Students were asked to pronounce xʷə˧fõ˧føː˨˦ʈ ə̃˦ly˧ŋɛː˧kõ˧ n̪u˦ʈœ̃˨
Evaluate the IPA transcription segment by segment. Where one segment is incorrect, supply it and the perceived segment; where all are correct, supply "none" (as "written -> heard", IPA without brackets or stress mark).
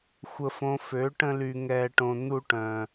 k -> ʈ